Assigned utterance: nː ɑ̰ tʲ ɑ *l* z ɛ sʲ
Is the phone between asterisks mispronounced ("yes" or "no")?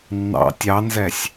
yes